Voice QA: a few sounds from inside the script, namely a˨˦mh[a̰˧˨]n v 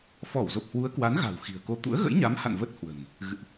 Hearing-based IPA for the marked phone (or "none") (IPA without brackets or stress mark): a̰˧˨